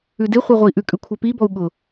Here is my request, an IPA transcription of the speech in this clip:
ʉ d e χʷ ɛ ʁʷ ɛ i̯ ʔ ʉ kʼ ʉ kʷʰ ɛ p i b ɔ u̯ ɠ ʊ

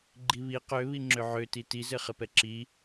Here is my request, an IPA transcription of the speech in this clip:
ɡ͡ǃ i β i q ø β i ŋ͡ǁ ø ʕ ø t i t i z ɘ χ ɘ p ɛ ǁ i

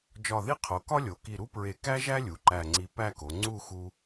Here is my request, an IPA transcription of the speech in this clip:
d͡ʒ ɒ˧˩ ð i˥ qʰ o˩˧ k ɒ˥ lʲ o˩˧ k i˧˩ ɾ u˥ p ɹ e˧˩ k æ˥ ʒ æ˥ lʲ u˩˧ ǃ æ˧˩ ŋ͡ǀ i˧ p æ˥˧ k o˩˧ ŋ͡ǀ u˥˧ x u˧

